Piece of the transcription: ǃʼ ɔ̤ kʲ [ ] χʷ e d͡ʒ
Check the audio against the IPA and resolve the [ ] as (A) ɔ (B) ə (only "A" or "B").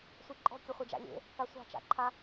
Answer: B